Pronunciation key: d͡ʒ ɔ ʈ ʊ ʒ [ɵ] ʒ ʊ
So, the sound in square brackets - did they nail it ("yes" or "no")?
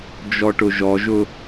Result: no